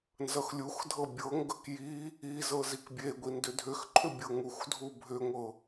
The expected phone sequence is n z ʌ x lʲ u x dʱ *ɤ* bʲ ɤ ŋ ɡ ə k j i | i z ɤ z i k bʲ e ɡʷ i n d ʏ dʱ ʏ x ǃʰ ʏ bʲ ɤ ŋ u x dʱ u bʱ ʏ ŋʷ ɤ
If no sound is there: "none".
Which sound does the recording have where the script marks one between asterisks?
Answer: ɤ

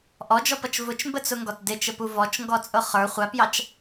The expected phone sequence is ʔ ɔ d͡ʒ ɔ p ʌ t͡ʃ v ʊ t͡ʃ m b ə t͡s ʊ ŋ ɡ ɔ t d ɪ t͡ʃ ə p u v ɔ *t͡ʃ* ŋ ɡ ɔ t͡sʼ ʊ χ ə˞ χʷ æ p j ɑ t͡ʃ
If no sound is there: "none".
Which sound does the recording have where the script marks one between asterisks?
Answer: t͡ʃ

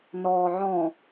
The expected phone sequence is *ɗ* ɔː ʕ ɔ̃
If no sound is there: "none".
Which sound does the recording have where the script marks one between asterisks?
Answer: n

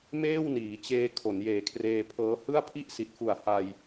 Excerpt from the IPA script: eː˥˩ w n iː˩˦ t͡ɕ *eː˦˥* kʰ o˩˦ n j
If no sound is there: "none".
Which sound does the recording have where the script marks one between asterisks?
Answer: eː˧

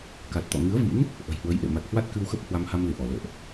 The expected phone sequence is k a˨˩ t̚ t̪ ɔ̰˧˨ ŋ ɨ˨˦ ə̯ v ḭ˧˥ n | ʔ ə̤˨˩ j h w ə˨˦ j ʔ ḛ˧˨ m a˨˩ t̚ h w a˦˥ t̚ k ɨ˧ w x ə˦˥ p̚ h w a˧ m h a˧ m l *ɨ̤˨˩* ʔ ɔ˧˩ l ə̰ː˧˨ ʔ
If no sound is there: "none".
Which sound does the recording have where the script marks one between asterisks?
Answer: ɨ˧˩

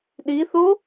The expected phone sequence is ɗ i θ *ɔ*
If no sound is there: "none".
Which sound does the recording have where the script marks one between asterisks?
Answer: o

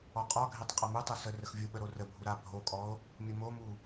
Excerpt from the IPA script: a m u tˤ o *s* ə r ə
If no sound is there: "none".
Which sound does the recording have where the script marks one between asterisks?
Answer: s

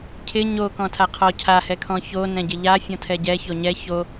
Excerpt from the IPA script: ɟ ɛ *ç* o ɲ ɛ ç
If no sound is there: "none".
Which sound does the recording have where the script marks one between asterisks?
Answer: ç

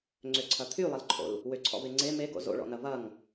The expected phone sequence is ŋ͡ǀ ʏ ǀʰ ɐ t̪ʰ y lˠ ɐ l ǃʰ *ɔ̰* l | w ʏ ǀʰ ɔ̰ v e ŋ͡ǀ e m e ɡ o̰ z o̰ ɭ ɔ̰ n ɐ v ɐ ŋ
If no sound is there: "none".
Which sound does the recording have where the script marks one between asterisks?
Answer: o̰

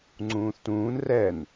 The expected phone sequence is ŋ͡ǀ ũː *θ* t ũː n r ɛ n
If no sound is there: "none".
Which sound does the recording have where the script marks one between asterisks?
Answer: θ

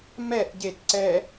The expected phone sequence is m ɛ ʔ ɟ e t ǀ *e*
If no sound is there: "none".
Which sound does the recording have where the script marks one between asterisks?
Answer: ɛ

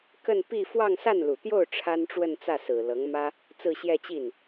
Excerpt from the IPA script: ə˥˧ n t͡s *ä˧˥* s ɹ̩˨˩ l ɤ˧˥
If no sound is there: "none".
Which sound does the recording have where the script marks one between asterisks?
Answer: ä˥˩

